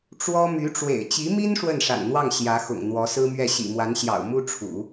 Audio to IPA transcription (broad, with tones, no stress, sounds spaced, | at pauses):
ʈ͡ʂ w ɔ˥ m y˧˥ ʈ͡ʂ w ḛ˨˩ ɪ̯ t͡ɕ i˧˥ m i˥ n ʂ w ə˥˩ n ʂ a̰˨˩ n n̪ w ɑ˥˩ ŋ ɕ j ä˧˥ x ʊ̰˨˩ ŋ n̪ w ɔ˧˥ s ɹ̩˥ m ɥ ɛ˥˩ ɕ ḭ˨˩ m w a˧˥ n ɕ j ɑ̰˨˩ ʊ̯ m u˥ ʈ͡ʂʰ ṵ˨˩˦